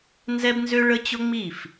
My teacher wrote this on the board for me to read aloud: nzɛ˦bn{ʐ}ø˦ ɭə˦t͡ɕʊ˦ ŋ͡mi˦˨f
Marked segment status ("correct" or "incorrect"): incorrect